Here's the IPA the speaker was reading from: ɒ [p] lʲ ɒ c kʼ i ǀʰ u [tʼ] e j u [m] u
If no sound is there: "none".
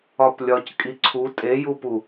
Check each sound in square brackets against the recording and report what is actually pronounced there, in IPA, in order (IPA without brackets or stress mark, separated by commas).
p, tʼ, p